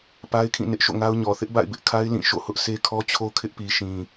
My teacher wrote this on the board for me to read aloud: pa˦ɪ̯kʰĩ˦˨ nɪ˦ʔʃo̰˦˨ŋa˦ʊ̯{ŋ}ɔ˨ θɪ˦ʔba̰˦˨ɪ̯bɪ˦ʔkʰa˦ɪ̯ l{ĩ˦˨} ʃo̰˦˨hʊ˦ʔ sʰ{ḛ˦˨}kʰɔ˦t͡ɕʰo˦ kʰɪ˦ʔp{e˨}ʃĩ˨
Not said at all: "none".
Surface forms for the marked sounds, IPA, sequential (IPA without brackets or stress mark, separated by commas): ɲ, ĩ˦˨, e˦, i˨